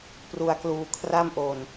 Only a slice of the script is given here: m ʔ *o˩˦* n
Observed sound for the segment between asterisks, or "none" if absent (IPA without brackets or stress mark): o˧